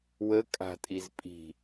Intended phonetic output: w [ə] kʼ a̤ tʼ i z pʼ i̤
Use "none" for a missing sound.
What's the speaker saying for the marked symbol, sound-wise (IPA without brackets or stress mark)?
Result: ə